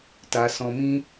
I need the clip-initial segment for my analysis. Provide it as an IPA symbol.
t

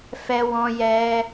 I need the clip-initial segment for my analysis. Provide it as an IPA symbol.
f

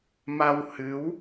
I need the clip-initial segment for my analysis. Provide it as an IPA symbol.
m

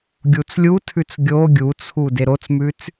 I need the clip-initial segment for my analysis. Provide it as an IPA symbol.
ɡʲ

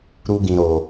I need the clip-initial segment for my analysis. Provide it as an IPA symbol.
ɾ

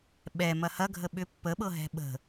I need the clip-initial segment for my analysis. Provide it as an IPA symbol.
ɓ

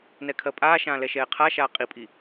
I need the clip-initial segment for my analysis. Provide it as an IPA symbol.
n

